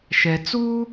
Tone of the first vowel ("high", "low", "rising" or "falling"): low